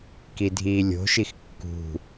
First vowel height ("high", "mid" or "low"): high